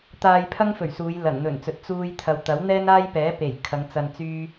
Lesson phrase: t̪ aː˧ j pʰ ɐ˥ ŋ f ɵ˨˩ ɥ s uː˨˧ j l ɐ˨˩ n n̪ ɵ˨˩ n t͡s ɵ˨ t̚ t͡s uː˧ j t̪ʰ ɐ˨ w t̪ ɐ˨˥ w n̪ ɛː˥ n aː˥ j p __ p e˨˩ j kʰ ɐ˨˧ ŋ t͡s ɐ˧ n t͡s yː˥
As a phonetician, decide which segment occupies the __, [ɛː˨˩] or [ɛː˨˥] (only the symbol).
ɛː˨˥